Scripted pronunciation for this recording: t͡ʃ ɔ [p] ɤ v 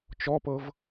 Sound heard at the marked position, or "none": p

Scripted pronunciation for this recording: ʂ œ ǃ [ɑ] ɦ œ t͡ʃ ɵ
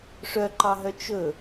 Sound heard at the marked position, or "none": ɑ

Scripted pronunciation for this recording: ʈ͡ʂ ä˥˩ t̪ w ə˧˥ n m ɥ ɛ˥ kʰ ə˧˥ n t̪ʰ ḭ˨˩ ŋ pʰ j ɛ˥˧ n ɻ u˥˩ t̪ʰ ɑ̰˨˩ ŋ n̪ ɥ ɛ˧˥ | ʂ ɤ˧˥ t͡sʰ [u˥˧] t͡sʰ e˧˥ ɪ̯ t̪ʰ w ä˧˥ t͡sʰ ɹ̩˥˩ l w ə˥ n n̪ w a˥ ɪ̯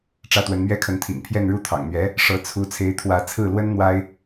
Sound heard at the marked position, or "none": u˧˥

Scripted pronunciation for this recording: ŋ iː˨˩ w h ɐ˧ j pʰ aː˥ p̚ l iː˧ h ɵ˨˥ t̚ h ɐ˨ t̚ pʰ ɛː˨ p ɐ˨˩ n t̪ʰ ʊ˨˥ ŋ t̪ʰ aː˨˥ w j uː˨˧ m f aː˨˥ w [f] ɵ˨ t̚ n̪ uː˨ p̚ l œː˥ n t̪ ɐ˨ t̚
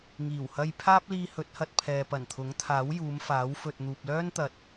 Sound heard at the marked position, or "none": f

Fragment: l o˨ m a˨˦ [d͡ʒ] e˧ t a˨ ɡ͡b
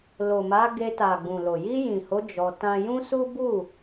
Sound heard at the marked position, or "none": ɡ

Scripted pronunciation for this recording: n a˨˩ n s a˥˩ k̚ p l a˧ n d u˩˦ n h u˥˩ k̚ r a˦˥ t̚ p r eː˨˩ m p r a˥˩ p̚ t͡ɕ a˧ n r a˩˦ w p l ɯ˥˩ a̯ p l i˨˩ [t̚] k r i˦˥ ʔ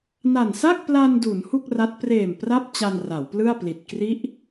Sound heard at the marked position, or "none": t̚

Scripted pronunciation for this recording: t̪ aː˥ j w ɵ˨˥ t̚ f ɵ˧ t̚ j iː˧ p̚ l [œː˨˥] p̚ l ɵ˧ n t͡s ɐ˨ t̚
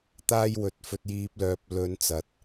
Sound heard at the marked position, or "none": œː˨˥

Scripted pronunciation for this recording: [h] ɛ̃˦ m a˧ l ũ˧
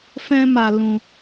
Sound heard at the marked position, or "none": f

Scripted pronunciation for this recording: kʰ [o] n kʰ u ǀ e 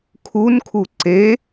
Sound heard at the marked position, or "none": u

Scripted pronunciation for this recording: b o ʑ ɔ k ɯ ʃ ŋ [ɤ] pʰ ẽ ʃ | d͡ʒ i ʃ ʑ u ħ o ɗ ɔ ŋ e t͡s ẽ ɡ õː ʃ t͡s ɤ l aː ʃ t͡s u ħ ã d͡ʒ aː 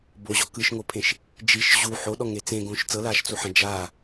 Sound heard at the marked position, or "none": o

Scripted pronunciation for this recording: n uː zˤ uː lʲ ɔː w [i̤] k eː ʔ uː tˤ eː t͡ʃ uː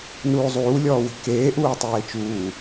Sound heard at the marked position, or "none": i̤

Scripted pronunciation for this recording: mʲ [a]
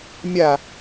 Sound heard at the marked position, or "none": a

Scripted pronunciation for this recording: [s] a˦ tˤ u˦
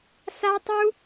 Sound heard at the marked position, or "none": s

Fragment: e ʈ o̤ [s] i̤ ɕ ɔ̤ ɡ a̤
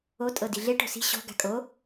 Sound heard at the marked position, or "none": s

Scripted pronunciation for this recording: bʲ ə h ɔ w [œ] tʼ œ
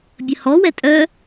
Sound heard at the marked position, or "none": ɛ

